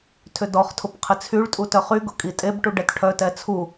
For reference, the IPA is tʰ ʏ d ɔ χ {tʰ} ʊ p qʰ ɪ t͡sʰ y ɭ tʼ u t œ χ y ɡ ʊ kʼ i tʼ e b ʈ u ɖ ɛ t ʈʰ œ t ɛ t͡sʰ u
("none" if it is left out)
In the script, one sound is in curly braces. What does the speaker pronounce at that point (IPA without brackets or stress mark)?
tʰ